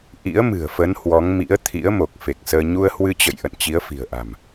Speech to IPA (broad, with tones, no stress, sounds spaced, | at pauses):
ʔ ḭ˧˥ ə̯ m ɨ̤˨˩ ə̯ f ə˨˦ n h w ɔ˨˦ ŋ m ḭ˧˥ ə̯ t̪ʰ ḭ˧˥ ə̯ m o˨˩ k̚ f e˨˩ k̚ s əː˧ ɲ u˧ ə̯ h w ɨ˧ t͡ɕ ə̰˧˨ j ʔ ə̰˧˨ n t͡ɕ i˨˦ ə̯ f i̤˨˩ ə̯ ʔ a̤˨˩ m